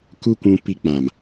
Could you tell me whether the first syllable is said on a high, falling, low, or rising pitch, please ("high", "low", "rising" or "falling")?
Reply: high